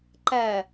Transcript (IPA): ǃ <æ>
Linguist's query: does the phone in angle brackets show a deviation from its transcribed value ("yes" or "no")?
no